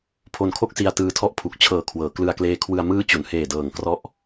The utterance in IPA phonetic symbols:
pʰ o˧ n kʰ o˥˩ k̚ s i˧ a̯ t ɯː˧ tʰ ɔ˥˩ ʔ pʰ u˨˩ k̚ t͡ɕʰ ɤː˨˩ kʰ w ɤː˩˦ k l ɯ˧ a̯ k l eː˦˥ kʰ w ɯ˧ a̯ m ɯː˦˥ t͡ɕ u˩˦ n h eː˨˩ d ɤː˨˩ ŋ k r ɔ˦˥ ʔ

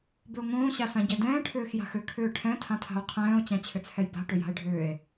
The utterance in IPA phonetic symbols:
b ʏ o̯ ŋ õː ɕ a s ã ɟ ɛ d ɛ̃ː ʈʰ ʏː x j a̤ x ʏ kʰ ʏː ʈʰ ɛ̃ tʰ ã tʰ a̤ o̯ qʰ ɛ̃ː o̯ t͡ɕ ã t͡ɕʰ ʏ t͡sʰ ɛ j b a̤ ʈ ʏ j a̤ e̯ ɖʱ ʏː e̯

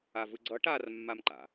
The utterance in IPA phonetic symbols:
a v ɯ ɡ͡ǀ ʌ ʈ a r mː a m ǃ a̰

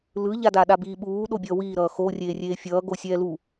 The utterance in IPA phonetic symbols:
l ɯ ʎ a d a ɗ a b iː ɓ uː ɗ o bʲ ʌː w iː ɾ ʌː x o rʲ eː rʲ eː fʲ ʌː ɡ o sʲ ɛː l u

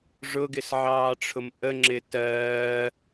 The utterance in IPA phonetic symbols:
ʐ ʊ ɡ ɪ s ʕ ɑː ʈ͡ʂʰ ʊ m ʔ ə ŋ͡ǁ ɪ t ɜː

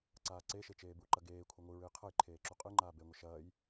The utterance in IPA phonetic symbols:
ǀ aː ǀ e ʃ e t͡ʃ eː b u ǃ ɐ ɡ eː kʷʰ ɐ ŋʷ ɨ ɹ ɨ j qʰ ɐ j ǃʰ eː ǁ u qʼ ɨ ŋ͡ǃ aː b e ŋʷ ɘ ʃ ɐː j

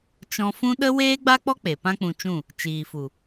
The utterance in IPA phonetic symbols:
t͡ʃ ɔ̃˧ f ũ˦ ɗ ə˦ w eː˦ ɡ͡b a˦ k͡p ɔ˦ k͡p e˨ p ã˦ k͡p ũ˧ t͡ʃ ũ˦˨ | t͡ʃ iː˨ f u˨

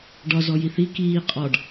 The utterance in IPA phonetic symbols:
ɖ ɒ z ɔ j i θ i k iː qʼ ɒ ɖ

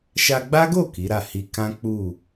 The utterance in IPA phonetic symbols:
ʃ a˧ ɡ͡b a˦ ɡ o˦˨ k i˨˦ ɾ a˦˨ h i˧ k ã˦ k͡p u˦˨

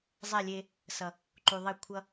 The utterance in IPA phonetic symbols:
zˤ ɛ˦˨ lʲ e˦ | s ʌ˨ | ǃ u˨ ðˤ e˦˨ kʷʰ ʌ˦

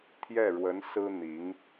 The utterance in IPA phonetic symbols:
t̪ʰ j ɛ˥˩ ɻ w ə˧˥ n s ɹ̩˥ n̪ i˧˥ ŋ

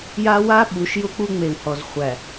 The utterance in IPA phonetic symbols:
j a˦ w a˦ ɓ u˨˦ ʃ j ʊ˦ k͡p u˦ ŋ͡m e˨ w h ɔ˨ z χʷ æ˨

